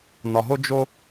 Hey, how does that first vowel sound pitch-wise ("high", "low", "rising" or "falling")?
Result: low